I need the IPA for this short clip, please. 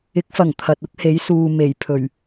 ɪ˨˥k̚fɐ˨˩ŋ t̪ʰɐ˨t̚ʊ˥k̚he˨˥j suː˨ me˨˩jpʰɵ˨˩ɥ

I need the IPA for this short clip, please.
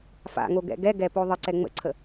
fa̰ŋoɡɛ̰ ɡɛɡɛpo ðˤəǀɛ ŋ͡mə̰ǀʰə

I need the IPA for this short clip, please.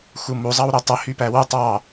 xumu zˤɑwɾetˤɵ hypæwu tˤɑ

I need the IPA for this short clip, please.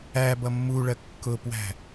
æ bʌmːuɭɜ kːʊpwæ̤

